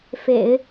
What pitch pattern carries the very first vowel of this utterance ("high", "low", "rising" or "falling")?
low